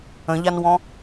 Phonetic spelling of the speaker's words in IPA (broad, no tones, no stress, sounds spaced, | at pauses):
ə̃ ʎ a n w ɔ̃